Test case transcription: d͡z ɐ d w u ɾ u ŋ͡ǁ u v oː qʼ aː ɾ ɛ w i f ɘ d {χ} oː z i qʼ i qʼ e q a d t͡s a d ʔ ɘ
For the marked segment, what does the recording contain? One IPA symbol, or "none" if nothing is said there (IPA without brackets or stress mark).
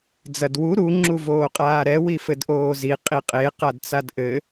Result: ʔ